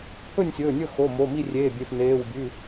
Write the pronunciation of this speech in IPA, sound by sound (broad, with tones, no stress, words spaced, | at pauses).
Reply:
pʰɵ˥˨nʲsʲɵː˩˧˩nʲɵ˥˨xo˩˧˩ mo˩˧˩ mi˥˨rʲeː˩˧˩bʲe˩˧˩f neː˩˧˩wbʲʉ˩˧˩